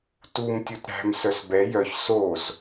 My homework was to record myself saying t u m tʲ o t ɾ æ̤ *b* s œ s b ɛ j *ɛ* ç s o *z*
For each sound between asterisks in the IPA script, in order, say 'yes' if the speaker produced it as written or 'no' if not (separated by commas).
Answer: no, no, yes